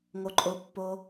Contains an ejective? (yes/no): yes